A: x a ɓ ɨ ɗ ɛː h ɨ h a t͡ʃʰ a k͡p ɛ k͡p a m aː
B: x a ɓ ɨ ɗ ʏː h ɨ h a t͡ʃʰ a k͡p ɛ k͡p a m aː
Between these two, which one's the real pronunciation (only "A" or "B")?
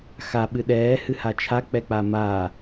A